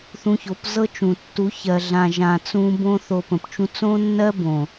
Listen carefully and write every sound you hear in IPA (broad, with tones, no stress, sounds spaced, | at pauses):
θ ũ˧ ç o˨˦ p z ɤ˦ t͡ʃ ũ˨ tː u˨˦ ç ɜ˨ ɮ ã˨ ʒ ã˨ t͡s ũ˧ b õ˧ θ o˨ p ə̃˨ p t͡ʃ ũ˧ t͡s õ˦ nː ɜ˦ b õ˨